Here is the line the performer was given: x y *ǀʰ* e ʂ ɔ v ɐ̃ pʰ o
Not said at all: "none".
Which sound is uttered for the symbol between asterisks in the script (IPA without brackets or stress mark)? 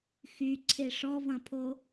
ǀʰ